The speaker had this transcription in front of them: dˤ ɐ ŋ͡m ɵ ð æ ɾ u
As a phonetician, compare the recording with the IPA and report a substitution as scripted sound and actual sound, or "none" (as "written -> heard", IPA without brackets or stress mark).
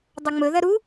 æ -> ɐ